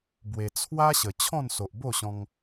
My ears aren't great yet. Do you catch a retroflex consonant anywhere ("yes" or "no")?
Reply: no